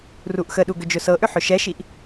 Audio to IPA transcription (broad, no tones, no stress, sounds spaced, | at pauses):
r u ʔ x ə ɗ u ɡ ʏ d͡ʒ ʊ s ɤ ʔ ʏ ħ ʏ ʃ ɛ ʃ i ʔ